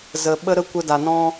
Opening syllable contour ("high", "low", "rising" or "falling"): low